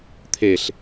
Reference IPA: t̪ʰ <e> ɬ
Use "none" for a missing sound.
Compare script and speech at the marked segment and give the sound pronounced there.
e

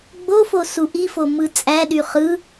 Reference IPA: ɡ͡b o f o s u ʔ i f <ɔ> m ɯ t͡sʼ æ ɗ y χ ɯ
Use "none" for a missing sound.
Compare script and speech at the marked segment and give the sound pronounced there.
o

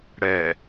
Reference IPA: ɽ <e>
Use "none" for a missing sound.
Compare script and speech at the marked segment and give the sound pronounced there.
ɛ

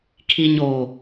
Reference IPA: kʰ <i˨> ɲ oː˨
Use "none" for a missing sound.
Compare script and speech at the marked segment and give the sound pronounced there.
i˨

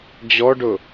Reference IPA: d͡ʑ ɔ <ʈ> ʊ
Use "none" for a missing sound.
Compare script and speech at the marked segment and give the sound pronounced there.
ɖ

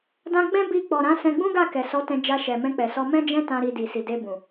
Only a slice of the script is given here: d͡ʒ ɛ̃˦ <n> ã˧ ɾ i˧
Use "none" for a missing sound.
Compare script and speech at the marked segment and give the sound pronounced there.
t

